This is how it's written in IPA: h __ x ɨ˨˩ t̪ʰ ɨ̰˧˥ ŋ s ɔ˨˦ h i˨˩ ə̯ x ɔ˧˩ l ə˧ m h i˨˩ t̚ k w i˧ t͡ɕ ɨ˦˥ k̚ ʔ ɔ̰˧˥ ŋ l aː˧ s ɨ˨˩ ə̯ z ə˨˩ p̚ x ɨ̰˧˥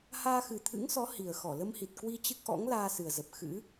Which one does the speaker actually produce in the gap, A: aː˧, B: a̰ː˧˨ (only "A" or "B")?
A